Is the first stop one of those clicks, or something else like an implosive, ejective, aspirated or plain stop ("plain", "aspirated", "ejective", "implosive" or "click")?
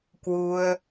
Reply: plain